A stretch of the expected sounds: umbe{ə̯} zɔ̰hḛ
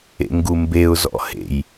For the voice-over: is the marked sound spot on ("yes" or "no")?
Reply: no